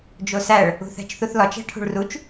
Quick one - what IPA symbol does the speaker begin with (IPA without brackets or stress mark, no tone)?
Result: d͡ʒ